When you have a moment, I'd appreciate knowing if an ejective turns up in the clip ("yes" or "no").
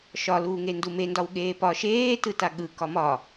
no